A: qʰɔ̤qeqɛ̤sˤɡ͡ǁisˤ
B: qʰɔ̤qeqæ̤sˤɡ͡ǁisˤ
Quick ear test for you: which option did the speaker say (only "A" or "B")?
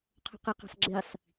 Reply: A